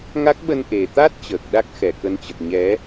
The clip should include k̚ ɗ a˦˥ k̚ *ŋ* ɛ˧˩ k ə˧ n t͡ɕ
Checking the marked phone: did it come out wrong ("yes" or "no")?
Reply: yes